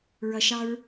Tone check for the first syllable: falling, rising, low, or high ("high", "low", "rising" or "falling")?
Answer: low